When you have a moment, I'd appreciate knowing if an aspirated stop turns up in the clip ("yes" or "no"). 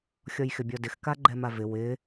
no